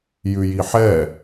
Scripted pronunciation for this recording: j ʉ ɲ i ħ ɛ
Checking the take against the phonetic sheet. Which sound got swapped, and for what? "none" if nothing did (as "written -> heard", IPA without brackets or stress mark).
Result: ɲ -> j